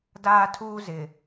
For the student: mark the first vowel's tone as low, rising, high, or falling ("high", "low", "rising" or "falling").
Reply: high